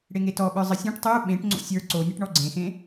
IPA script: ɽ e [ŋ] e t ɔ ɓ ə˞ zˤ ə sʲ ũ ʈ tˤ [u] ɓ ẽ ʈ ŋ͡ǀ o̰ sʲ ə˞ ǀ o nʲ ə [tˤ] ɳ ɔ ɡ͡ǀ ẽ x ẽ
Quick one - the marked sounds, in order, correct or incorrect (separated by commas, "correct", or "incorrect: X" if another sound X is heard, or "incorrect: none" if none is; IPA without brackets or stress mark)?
correct, correct, incorrect: ʈ